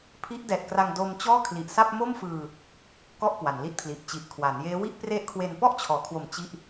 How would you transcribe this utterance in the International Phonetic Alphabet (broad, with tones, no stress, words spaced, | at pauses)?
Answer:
pʰi˦˥ʔdɛː˨˩t̚kra˧ŋ do˧m t͡ɕɔː˥˩kʰli˨˩ʔsa˥˩p̚ mo˥˩mfɯː˧ | kɔ˥˩ʔkwa˩˦nli˦˥t̚pʰli˨˩ʔ t͡ɕi˨˩ʔkʰwa˩˦njeː˦˥ wi˥˩ʔ pre˦˥ʔkʰwe˧n pɔ˥˩ʔt͡ɕʰɔː˩˦kʰwo˨˩m t͡ɕi˥˩ʔ